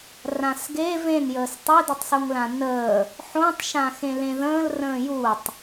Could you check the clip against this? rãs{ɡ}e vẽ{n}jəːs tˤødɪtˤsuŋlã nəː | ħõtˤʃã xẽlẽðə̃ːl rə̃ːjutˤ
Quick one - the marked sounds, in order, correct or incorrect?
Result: correct, correct

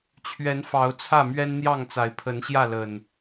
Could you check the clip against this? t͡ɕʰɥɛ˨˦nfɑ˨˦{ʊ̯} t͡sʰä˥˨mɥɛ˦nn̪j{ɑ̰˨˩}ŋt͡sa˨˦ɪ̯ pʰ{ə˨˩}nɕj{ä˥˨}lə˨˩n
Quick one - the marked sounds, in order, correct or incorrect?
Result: correct, incorrect, incorrect, correct

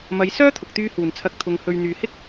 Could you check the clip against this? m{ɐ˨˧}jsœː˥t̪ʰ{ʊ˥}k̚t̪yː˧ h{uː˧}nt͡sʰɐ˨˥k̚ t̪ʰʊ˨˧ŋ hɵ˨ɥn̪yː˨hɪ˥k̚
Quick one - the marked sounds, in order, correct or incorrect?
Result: correct, incorrect, incorrect

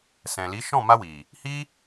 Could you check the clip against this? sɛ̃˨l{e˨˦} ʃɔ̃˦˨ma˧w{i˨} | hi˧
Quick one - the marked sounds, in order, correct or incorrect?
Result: incorrect, correct

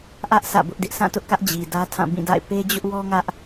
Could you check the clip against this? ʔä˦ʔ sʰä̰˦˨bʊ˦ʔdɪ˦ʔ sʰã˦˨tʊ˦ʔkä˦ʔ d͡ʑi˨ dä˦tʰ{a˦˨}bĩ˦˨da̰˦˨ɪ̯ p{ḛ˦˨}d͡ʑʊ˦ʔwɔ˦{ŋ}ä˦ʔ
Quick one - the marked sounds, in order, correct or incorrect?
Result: incorrect, incorrect, correct

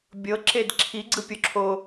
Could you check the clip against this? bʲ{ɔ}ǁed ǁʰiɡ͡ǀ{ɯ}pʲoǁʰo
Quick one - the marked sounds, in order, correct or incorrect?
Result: incorrect, correct

